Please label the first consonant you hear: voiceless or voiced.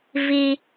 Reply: voiced